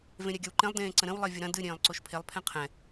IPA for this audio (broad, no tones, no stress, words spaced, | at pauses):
vẽɾʲɛɡʲɐwǃẽlˠ dẽːǀə̃ɾə̃w lˠevʲəɾɐ̃ dɨ ɾʲẽːlˠǀoʃpʰelˠ pʰɛ̃qʰɛ̃